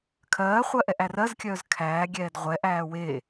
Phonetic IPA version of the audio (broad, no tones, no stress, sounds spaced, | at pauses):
kʰ ɜː χʷ ɜ ʔ ɛ ʔ æ r ɜ z kʲ œː z kʰ æː ɡʲ ɛː d ʁʷ ɛ ʔ æː w e